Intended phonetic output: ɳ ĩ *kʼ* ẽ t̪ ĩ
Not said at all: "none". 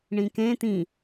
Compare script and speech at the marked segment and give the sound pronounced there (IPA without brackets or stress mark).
k